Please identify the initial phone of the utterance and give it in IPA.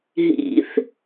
ɦ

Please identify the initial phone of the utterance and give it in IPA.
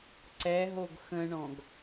ǀ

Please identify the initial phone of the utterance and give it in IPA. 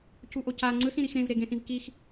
c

